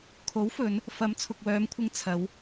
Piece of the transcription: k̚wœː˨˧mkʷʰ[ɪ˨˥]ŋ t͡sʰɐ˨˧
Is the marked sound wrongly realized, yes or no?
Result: yes